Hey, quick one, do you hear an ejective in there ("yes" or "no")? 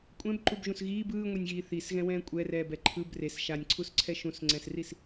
yes